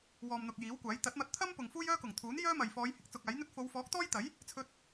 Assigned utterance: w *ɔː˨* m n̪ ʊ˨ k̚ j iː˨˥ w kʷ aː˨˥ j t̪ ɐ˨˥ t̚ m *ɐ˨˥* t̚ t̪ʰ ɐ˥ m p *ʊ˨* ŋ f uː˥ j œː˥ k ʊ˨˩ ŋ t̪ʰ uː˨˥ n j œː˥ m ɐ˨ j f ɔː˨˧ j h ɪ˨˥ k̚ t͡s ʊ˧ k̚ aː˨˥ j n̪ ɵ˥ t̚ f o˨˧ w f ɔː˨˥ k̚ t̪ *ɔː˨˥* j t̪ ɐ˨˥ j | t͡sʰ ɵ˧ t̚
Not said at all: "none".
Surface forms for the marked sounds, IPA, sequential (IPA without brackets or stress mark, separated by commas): ɔː˨, ɐ˧, ʊ˨, ɔː˥